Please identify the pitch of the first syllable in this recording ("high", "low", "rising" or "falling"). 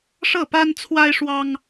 falling